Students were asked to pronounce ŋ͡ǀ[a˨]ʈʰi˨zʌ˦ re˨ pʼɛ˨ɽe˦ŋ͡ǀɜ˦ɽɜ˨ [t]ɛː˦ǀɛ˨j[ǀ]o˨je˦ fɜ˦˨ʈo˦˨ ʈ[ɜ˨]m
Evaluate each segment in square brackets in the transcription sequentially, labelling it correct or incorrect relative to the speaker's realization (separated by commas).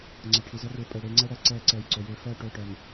correct, incorrect, correct, correct